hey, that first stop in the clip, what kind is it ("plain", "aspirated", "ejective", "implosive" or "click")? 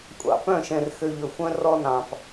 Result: ejective